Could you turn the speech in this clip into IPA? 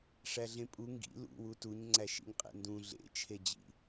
ʂ æ ɮ ẽ pʼ u ŋ ɡ ḭ l ṵ w u t u ɲ ŋ͡ǀ æ ʃ ḭ ɲ qʼ ḛ n d ũ ɮ ḛ t͡ʃʰ e d͡ʑ ḭ

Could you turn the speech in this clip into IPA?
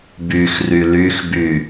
b y x r y l y x b y

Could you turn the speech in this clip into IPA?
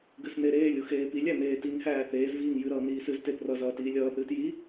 ɡ ɨ s n e ɾ eː lʲ u x eː p i lʲ æ n eː t i ŋ h æː θ eː z v iː ŋ j ɨ ɾ ʌː n iː s ɨ z t e p r ʌ z ʌː t iː lʲ ʌː θ ɨː t j i

